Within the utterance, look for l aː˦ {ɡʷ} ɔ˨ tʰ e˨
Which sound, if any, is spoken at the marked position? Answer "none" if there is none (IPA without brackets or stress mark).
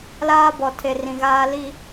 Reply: b